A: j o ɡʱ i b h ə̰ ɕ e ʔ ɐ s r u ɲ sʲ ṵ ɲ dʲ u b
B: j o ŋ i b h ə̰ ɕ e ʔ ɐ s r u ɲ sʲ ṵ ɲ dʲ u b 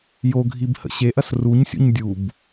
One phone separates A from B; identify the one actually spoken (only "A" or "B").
A